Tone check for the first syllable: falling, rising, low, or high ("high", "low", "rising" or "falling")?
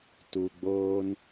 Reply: low